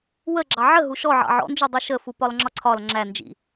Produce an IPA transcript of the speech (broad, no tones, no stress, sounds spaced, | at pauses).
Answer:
w ə ɡ͡ǁ ɑ ʕ ə ɦ u ʃ ɔ ʕ ɑ̰ ʕ ɔ̰ n d͡ʒ u dˤ u ʃ ə f u p ɒ l ŋ͡ǁ ɒ ǀʰ ɒ l ŋ͡ǁ æ n d͡ʒ ḭ